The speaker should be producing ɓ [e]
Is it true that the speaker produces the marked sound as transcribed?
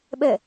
no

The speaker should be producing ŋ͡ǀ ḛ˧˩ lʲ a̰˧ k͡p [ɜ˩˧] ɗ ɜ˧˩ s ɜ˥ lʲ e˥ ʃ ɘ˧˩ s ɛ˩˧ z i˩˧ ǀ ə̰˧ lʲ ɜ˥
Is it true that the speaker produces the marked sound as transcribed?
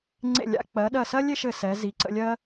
yes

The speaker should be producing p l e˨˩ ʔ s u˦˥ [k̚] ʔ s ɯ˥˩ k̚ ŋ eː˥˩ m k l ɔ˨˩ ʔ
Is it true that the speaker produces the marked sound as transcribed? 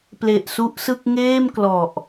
no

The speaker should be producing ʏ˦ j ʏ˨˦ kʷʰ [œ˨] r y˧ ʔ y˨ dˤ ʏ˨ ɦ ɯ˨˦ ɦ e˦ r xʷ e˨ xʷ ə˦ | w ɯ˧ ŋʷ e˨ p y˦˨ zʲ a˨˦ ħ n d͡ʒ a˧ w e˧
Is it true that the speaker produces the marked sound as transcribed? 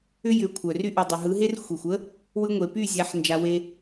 yes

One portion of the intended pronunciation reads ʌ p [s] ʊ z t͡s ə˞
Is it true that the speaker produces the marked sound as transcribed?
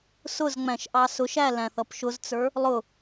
no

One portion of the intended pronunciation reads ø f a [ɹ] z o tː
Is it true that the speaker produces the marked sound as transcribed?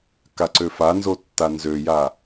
no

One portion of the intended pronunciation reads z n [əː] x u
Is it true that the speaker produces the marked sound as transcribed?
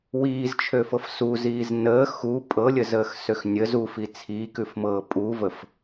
yes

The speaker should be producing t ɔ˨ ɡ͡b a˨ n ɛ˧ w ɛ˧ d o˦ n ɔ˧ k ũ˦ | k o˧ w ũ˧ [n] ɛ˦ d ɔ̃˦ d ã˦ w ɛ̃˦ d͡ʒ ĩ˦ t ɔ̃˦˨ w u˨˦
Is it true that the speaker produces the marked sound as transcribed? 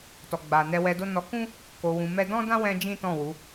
no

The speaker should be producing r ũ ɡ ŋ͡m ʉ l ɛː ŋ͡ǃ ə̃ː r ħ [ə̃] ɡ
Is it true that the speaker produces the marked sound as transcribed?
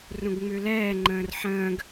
no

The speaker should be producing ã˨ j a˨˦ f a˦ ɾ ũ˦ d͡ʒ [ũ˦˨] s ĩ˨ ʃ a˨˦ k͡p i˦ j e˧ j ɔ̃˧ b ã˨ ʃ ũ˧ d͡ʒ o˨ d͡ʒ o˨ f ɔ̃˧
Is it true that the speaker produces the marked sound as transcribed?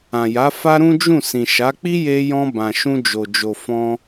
yes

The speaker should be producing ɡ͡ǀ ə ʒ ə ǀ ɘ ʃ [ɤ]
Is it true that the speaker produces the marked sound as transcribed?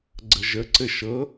yes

